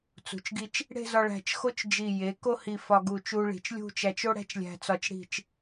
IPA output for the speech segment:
t͡s ṳ˩˧ t͡ʃ ɡ i˧ t͡ʃ | ɽ e̤˥˧ z ɒ˧ ɭ æ̤˧˩ t͡ʃ x o˥ t͡ʃ d͡ʒ i˧˩ j e˩˧ k o˥˧ h i˧˩ f ɒ˧ ɡ u˧˩ t͡ʃ u˧ ɭ i̤˩˧ t͡ʃ lʲ ṳ˥˧ t͡ʃ æ˧ t͡ʃ o˥ ɽ æ̤˥ t͡ʃ lʲ æ̤˧ t͡s ɒ˧ t͡ʃ ɽ i̤˧˩ t͡ʃ

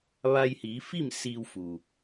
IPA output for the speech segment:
ʋ a˧ j h iː˩˧ f i˥˨ m s iː˧ w f u˩

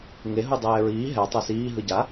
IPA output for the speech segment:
ŋ e ɦ u dˤ ɛː ɹ iː ɦ ɛ tˤ e s iː ɦ ɯ ɟ a

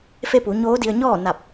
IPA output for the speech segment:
f e˧ p u˩˧ ɲ oː˧˥ d i˧ ə̯ ɲ ɔː˥˨ n a˧˩ p̚

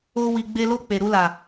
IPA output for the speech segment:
o˦ w i˧ ɡ͡b e˦ l o˦˨ k͡p e˨ ɾ u˧ l a˨

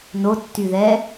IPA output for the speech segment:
n o tː y ð ɛ

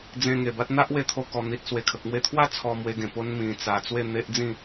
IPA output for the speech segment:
d͡z ẽ˧ ŋ e˨˩ b a˦ t̚ n̪ a˦ ʔ w e˧ t̪ʰ o˧ k ɔ˨˩ n̪ i˨ t̚ s w e˨˩ kʰ ə˨ k̚ m w e˧ t̪ʰ w a˥˧ t͡sʰ ɔ˧ m w e˧ ɡ ẽ˨˩ p o˧ n m ĩ˨˩ t͡s a˨˩ t͡s w e˥˧ n̪ e˦ ʔ d͡z ĩ˥˧

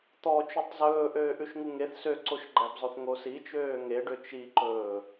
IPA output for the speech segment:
t̪ ɔ t͡ʃ o tˤ z ɵː ʔ øː ʔ ʉ ʃ ŋ u ŋ e θ s ø ǀ o ʃ ɡ͡ǃ æ b zˤ o θ ŋ o s i t͡ʃ øː ŋ e ɖ ø t͡ʃ i ǃ ɵː

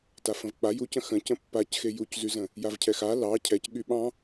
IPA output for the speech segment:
t a f ə̃ v k͡p a j u c ə̃ x ə̃ c ə̃ pː a c x e j u c z y z ə̃ | j a v cʰ ɛ x a l ɑ cʰ ɛ c ɠ y ɓ ɑ̃

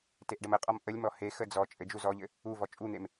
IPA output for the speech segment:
t e ʔ ɖ ə m ə qʼ ɔ m ʔ ə lʲ m ɔ h e x ə d͡z ɔ t͡ʃʼ ɘ d͡ʒ u z ɔ ʎ ɘ | u v ɔ t͡ʃʼ u n̪ e m

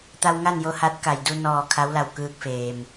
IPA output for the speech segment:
t̪ a˧ w ŋ a˥˨ n j o˧ h a˧˥ t̚ k a˩ j d u˧ n ɔː˧˩ kʰ a˧˥ w l a˧˩ w k ɯː˧ k̚ f eː˩ m

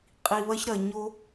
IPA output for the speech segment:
qʼ i˩ β ɐ˧ ç ɾ ɐ˩ ɲ o˧

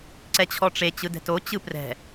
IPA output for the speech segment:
ǀ ɛ t͡ɕʰ ɔ ʈ͡ʂ e t͡ɕ ɯ d ɛ̤ t o t͡ɕ ɯ p r ɛ̤

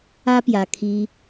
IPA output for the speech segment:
a˦ p j a˧ kʰ i˦

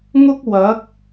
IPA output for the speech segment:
ŋ ʊ˥ k̚ w ɐ˨˥ k̚

